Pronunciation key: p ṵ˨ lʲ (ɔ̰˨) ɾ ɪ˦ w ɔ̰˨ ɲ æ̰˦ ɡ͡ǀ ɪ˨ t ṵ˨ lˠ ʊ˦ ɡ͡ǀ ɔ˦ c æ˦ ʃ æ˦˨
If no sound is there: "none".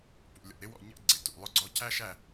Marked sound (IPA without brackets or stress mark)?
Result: ɔ̰˨